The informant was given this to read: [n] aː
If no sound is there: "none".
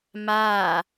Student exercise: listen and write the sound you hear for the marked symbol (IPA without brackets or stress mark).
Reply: m